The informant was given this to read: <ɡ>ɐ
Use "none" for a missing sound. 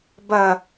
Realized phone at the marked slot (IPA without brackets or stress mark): b